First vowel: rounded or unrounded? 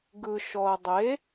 unrounded